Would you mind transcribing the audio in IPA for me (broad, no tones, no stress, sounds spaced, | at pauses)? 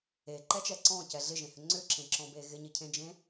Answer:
e ǃ ɛ t͡ʃ ɛ ǀ ɔ̃ c ɛ ɮ ɪ ʒ ẽ h ʏ ŋ͡ǀ ʏ ǁ ẽ ǁ ɔ̃ b e ɣ ɪ ɲ ɪ cʰ ẽ d͡ʒ ẽ